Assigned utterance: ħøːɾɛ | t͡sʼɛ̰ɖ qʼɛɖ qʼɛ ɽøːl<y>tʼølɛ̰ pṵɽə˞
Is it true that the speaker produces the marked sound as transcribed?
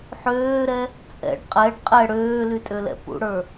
yes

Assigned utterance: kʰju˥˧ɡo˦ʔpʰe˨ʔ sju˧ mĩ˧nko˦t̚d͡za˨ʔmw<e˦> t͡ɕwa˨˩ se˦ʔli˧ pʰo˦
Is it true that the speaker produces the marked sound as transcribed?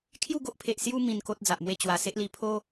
no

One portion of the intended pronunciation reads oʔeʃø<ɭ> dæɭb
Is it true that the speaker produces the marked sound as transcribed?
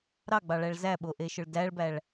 yes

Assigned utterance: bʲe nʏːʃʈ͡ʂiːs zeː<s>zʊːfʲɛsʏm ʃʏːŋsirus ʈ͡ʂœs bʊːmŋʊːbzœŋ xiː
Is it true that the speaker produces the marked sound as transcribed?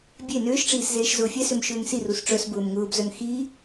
no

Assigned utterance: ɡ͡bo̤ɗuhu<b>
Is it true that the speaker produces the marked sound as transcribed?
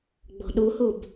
yes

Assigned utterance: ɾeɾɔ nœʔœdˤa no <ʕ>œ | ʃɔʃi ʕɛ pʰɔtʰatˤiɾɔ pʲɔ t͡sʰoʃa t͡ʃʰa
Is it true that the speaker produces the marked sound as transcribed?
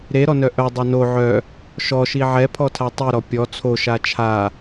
yes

